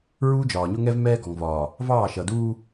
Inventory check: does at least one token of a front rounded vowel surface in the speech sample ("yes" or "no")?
no